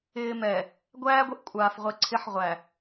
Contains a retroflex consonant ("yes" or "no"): no